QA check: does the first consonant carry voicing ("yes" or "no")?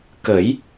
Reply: no